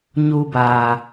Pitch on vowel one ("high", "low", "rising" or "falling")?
high